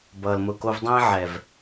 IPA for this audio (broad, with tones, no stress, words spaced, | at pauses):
bʌː˨l mʊ˨ko˧vdˤẽː˦ ʕɛ˨v